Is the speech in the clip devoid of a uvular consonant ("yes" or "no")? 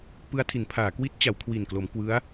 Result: yes